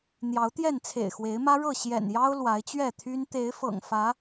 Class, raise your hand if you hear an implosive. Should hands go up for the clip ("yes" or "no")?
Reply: no